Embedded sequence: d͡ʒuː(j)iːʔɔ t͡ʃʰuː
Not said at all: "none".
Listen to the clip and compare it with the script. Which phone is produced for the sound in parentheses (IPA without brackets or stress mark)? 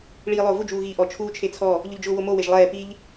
ɣ